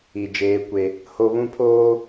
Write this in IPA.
i˨ d͡ʒeː˦kʷe˦ | ho˦βũ˦pʰoː˦

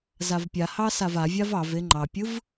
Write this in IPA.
zavpʲahɑ savavʲav ɑv eŋ͡ǃɑpʲɯv

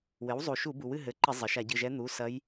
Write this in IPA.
wɘ˩˥wzˤu˩ ʃu˧˩˧bu˩wɨ˦˨ ɦɘ˩˥ǃɘ˧˩˧ zˤɘ˩ʃa˧˩˧ɟɨ˩˧˩ʒɛ˧˥ n̪u˩˧˩sɐ˧˥j

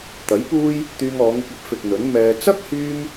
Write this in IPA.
t̪ɐ˨˥jpuː˥j | t̪yː˧ŋɔː˨˧ŋɪ˧k̚ɐ˨˥p̚ fɪ˨k̚n̪ɵ˨˥n mɛː˧ t͡sɐ˥k̚hyː˧m

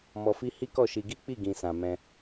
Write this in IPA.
mɔ˨fi˧ hi˦kɔ˦˨ʃi˧ ɡi˦k͡pi˦˨ ɡĩ˨sã˨ mɛ̃˧

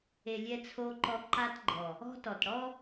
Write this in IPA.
e˨ lʲɛ˧t͡sʰo˧ǃɔ˧ ǃa˧tɡ͡ǃɔ˨ | ɔ̤˦ tɔ˨tɽɔ˦

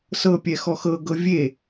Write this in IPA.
sɤpʲɛ xɔxɤɡɤ vʲe

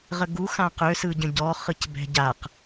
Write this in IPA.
ʁəɡu xãqø sɯɟə̃ɟɔ χɯcbɛ̤ɟaq

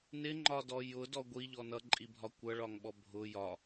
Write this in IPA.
nɪŋ͡ǃɒdɔ jʊdɔ ɡʷiʎɔ nʌǃʼibʱɒ kʷʌɭɒŋɓɔ bʱʊ jɒ

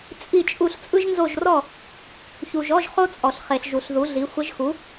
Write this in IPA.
t͡sʼi˥˨t͡ʃʼu˥˨ɬ t͡sʼɯ˥ʒnzo˥˨ʒrɔ˥˨ | çu˨ʒɔ˧˥˧ʒ χo˥t͡sʼɔ˨ɬ χe˨ɬʒu˨ɬ ðu˩˥ɮi˩˥xʷə˧˥ʒ xu˩˥

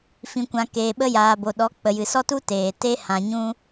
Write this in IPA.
fĩ˨kʷã˨ keː˨ɓə˧jaː˨bo˨ ɗɔ˨˦ k͡pə˨jɨ˨ sɔ˦tu˦ teː˨ te˧ hã˨ɲũ˧

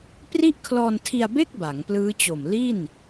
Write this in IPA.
pri˥˩ʔkʰlɔː˧ntʰi˧a̯be˥˩k̚ ba˩˦ŋplɯː˦˥t͡ɕo˨˩m li˥˩n

